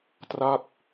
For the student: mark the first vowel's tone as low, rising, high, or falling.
falling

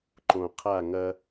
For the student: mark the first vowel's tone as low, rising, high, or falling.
low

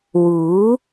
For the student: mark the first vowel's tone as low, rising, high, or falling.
rising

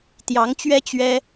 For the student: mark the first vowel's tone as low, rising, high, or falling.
rising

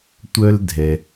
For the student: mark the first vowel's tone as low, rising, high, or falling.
high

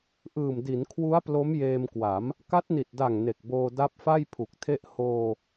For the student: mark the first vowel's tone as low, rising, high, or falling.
low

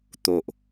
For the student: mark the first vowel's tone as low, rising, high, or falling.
low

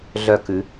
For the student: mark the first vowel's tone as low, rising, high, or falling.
falling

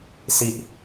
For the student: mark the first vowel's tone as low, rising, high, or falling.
low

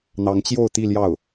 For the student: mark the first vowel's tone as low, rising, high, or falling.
rising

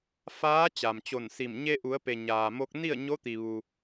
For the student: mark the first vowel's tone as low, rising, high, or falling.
rising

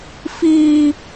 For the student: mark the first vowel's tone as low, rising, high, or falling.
high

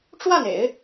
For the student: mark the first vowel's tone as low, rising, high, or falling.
falling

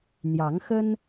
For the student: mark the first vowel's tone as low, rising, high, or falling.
rising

